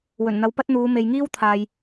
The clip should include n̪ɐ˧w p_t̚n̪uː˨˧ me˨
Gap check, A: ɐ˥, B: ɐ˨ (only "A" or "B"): A